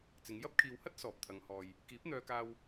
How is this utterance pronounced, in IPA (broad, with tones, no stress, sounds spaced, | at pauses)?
t͡s ɪ˨˧ ŋ j ɐ˥ p̚ kʰ iː˨ w h ɐ˥ t̚ s ɔː˨ p̚ t̪ʰ ɐ˨˧ ŋ h ɔː˨ j | k iː˨˥ p̚ n̪ œː˧ k aː˧ w